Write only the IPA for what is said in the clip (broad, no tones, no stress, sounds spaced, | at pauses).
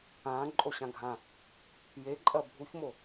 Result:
ãː ǃʼ o ɕ ã ɡʱ ã | j e ǃʼ ɐ bʱ u ç m o